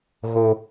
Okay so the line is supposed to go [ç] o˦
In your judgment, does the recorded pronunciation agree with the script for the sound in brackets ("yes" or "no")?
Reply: no